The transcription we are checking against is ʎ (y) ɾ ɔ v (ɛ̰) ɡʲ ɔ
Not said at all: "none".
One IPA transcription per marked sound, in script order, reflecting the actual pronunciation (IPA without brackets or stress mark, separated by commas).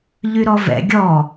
y, ɛ̰